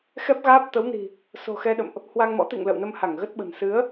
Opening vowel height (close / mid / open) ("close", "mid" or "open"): mid